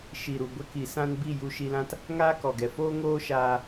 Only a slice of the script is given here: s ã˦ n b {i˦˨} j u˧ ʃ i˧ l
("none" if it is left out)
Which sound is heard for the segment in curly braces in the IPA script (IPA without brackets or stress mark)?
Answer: i˦˨